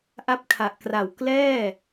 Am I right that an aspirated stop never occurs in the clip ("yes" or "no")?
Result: no